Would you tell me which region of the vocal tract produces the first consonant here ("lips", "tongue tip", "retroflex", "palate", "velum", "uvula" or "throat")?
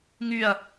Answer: velum